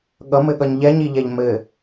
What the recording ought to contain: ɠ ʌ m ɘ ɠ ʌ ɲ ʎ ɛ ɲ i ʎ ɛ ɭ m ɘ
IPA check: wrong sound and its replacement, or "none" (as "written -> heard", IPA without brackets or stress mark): ɭ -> ʎ